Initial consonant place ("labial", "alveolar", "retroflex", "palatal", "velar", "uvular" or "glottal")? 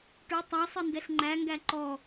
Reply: retroflex